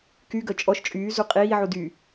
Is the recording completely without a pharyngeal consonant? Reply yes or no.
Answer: no